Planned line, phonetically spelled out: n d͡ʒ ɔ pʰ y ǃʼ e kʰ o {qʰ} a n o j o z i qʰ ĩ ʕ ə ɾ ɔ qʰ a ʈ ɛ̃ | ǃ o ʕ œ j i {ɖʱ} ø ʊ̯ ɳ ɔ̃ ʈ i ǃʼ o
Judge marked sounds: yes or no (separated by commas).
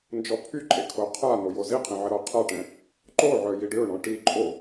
yes, no